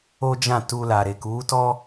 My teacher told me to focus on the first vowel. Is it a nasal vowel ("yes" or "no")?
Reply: no